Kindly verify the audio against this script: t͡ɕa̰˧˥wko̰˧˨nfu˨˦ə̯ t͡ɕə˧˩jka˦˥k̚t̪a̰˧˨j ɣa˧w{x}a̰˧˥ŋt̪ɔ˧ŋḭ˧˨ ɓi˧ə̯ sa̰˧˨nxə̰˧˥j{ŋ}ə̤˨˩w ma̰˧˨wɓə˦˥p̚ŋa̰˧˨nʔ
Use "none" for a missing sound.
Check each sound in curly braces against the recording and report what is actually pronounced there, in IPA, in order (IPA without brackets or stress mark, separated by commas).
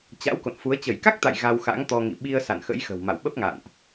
x, x